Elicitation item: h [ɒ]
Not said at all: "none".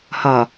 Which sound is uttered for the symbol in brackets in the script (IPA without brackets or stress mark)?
ɒ